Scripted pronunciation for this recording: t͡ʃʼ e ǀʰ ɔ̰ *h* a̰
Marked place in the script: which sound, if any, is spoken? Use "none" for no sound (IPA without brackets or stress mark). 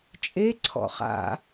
χ